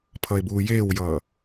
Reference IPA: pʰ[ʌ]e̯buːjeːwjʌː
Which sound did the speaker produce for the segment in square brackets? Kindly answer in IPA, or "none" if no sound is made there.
ʌ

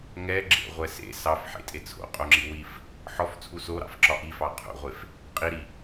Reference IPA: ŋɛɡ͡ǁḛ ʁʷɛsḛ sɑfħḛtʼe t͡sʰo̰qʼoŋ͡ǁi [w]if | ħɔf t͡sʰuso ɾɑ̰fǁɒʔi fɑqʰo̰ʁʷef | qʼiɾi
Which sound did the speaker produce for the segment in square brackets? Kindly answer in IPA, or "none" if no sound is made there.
w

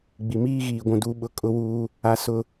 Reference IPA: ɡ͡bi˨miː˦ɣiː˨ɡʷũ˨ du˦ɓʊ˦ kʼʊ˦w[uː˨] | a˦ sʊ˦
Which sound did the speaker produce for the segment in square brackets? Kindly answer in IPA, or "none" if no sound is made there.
uː˦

